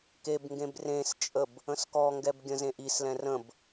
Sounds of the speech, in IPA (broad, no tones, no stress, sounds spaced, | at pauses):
k e b ŋ ɡ ẽ b r ẽ s t͡ʃʼ ə b | ə̃ s k ɔ ŋ ɡ ɛ b ɡʲ ə̃ z ẽ ʔ i s l ɛ̃ r ə̃ b